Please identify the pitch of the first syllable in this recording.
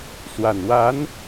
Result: low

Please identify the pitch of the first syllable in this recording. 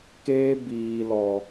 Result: high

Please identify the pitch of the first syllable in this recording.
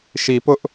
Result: low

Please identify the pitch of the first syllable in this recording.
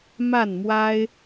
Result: falling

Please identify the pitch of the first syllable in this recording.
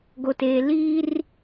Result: high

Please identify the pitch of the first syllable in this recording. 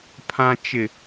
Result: low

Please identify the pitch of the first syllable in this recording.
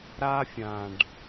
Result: high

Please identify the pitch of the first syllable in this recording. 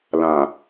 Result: low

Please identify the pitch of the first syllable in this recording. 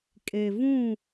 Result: low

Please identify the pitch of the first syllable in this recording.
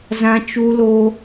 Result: high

